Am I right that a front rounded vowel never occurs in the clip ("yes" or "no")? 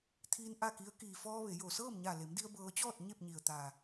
yes